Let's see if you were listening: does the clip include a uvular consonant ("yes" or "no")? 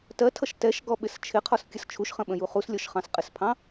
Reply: yes